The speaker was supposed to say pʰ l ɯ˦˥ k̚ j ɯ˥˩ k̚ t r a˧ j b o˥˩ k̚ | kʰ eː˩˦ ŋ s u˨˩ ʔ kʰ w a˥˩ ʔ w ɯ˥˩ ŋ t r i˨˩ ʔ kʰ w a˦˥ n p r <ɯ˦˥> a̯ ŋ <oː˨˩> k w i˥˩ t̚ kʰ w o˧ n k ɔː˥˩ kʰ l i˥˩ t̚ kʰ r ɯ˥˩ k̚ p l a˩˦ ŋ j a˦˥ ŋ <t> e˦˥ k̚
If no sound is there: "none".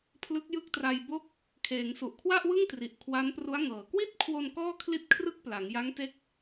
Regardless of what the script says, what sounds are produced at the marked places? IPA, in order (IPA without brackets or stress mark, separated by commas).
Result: u˦˥, ɤː˨˩, t